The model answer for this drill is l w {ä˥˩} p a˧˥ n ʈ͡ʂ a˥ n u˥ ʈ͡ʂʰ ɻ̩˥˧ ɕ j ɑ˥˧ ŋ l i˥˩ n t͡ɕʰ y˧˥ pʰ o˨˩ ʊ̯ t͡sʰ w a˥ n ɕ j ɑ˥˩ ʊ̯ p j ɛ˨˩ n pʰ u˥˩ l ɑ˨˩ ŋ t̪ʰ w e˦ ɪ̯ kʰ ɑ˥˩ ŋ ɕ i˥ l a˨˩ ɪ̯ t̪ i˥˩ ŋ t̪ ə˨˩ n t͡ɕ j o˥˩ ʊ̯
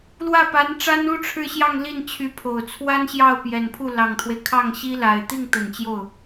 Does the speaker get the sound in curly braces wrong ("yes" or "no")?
no